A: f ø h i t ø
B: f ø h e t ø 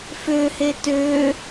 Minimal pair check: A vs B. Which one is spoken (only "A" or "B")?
B